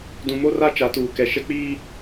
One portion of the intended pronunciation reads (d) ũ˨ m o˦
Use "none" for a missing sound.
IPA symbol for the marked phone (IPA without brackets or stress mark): d